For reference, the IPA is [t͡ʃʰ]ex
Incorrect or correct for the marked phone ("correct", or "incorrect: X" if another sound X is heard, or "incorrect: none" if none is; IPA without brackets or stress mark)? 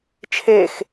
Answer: correct